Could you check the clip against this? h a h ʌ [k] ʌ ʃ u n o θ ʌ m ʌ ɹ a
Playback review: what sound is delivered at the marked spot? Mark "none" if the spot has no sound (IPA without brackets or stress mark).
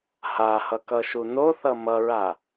k